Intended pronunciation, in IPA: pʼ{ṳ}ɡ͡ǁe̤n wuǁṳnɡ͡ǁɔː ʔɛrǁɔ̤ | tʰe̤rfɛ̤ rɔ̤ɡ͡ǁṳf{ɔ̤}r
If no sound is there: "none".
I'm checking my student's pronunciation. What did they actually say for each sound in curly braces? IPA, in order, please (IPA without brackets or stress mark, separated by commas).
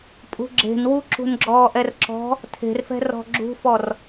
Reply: ṳ, ɔ